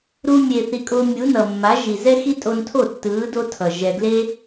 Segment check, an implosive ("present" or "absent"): absent